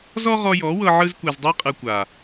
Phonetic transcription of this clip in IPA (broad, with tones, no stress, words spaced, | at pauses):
zɔ˦ʁɔ˧ jɔ˨˦wɤ˧ ʕɯ˧zkʷe˨zdˤi˧qʼɯ˨ kʷa˨